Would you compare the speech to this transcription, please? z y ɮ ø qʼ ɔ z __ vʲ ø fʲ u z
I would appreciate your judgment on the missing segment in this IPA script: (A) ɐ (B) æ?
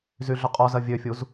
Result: A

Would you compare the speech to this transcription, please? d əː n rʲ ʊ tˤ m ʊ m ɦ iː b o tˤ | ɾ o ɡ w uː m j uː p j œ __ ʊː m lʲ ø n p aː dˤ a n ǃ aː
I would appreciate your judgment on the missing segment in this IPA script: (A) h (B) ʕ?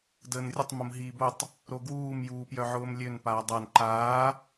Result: B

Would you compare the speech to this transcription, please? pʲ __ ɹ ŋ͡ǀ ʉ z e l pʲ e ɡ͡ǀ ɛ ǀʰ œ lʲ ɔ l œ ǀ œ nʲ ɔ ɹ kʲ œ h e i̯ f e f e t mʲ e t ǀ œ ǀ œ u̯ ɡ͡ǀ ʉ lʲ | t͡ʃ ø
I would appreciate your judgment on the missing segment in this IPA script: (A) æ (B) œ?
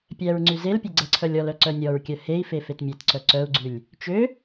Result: A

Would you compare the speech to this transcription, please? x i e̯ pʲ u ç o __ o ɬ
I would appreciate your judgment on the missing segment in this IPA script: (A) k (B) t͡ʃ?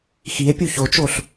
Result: B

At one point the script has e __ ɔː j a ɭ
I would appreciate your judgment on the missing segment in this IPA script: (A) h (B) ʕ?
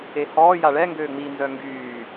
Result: A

